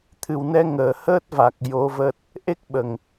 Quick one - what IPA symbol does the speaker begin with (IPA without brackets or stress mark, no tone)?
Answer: t̪ʰ